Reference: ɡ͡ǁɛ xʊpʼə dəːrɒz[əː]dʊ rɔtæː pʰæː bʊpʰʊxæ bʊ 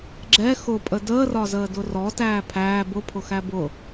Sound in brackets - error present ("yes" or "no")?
no